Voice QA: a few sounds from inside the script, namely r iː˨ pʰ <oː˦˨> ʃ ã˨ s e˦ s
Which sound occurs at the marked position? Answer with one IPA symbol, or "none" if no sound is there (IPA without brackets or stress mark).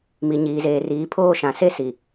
oː˦˨